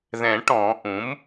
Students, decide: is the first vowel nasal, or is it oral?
nasal